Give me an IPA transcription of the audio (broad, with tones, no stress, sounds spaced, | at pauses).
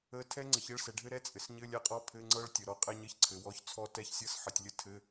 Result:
ə˧˥˧ tʰ ɛ˦˥ ŋ͡ǀ ə˩˧ ç ɘ˧˥˧ ɭ s ɛ˩˧ ɖʱ ɘ˦˥ ɾ ɛ˧˥˧ t͡sʼ ɘ˩˧ s ɲ ɘ˧˥˧ lʲ ɛ˧˥˧ qʼ ɔ˧˥˧ pʰ ɘ˧˥˧ ŋ͡ǀ ɤ˦˥ ɭ tʲ ə˩˧ ɾ ɔ˦˥ qʼ ɛ˦˥ ɲ ɘ˧˥˧ ç ǀʰ ɘ˩˧ w ɔ˧˥˧ ç t͡sʰ ɔ˦˥ t ɛ˧˥˧ ç sʲ ɤ˦˥ s ħ ə˩˧ tʲ lʲ ə˦˥ tʰ ɘ˧˥˧